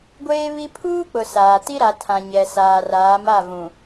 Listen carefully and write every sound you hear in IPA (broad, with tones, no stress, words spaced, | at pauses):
ɡʷeː˦βi˦ pʰuː˦k͡pʊ˨ saː˨ ti˦ ɾa˨ tʰã˨ ɲɛ˨saː˨raː˨˦m a˦˨vũ˨